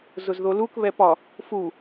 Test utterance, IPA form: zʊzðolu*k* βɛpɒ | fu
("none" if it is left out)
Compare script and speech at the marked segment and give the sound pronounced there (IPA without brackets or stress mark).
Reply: k